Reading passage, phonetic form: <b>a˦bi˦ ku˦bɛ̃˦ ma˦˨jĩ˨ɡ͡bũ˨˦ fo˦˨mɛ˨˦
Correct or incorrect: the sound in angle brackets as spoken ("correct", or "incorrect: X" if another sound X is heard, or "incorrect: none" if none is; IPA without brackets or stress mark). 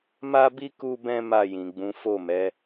incorrect: m